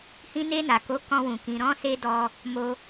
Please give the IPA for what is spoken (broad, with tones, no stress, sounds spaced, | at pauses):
h ĩ˧ n e˧ n a˨ k o˨˦ k ɔ̃˧ w ũ˨ k ĩ˨ ɾ ɔ̃˧ s e˧ d ɔ˧ | m o˧